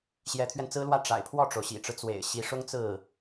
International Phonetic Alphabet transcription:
ɕ j ɛ˧˥ t̪ʰ ɥ ɛ˧ n t͡s ɹ̩˥ l w ä˥˩ ʈ͡ʂ a̰˨˩ ɪ̯ pʰ w ɔ˥˩ ʈ͡ʂ o˩ ʊ̯ ɕ ḭ˨˩ ʈ͡ʂ ɻ̩˦ t͡s w ḛ˨˩ ɪ̯ ɕ i˧˥ ʂ ʊ˥ ŋ t͡s ɹ̩˥˩

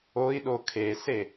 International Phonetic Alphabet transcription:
o i̯ ɗ o kʰ e s e

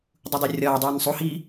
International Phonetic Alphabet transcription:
dˤ u dˤ o rʲ ɒː dˤ uː n sˤ u h iː

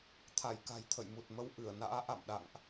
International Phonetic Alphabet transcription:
t̪ʰ a˧˩ j k a̤˨˩ j t̪ʰ ə̰˧˨ j m u˨˩ t̚ m ə˨˦ w ʔ ɨ˧˩ ə̯ n a̰ː˧˥ ʔ a̰˧˨ m ɗ a̰˧˨ ŋ ʔ

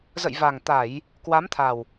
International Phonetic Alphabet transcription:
z ə̰˧˨ j v aː˨˩ ŋ t̪ a˧˩˨ j | k w a˨˦ m t̪ʰ a˨˩ w

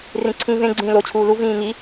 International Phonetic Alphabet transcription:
r ĩ ǀʰ ĩː v ẽ ɡ͡ǀ ĩː l o t͡ɕʰ uː l u v ĩː ŋ i

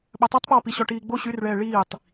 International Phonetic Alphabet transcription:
ɓ œ tˤ œ tˤ p ɔː p i ɕ ɔ ʈ iː ɡ͡b o ɕ y r ɭ ɛː ɭ iː tˤ

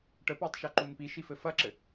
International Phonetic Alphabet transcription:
ʈ ə p a tˤ ʃ ɐ ǃ u n p i ʃ i f ɘ f ɐ ǁ ɘ

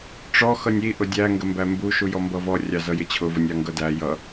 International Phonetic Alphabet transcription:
ʈ͡ʂ ɔ x ʌ nʲ i ʔ ʊ dʲ æ ŋ ɡ ə m b æ m b u ʃ u j ɔ m b ʌ v ɔ rʲ ɑ z ʌ j ɪ t͡ɕʰ ʊ v ə nʲ ɑ ŋ ɡ ʌ d æ j ʌ

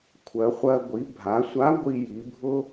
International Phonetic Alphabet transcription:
kʷʰ ɜ˩˧ χʷ ɜ˧ ɡʷ i˩˧ bʱ a˩˧ sʷ a˧˥ ɡʷ i˧ j i˩˧ bʱ ʊ˥

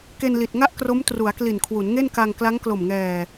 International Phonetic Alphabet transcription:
k e˧ n l i˨˩ t̚ ŋ a˥˩ ʔ k r o˦˥ m t r u˩˦ a̯ k l i˨˩ n kʰ w u˩˦ n ŋ e˥˩ n k a˧ ŋ k l a˦˥ ŋ k l o˨˩ m ŋ ɛː˨˩

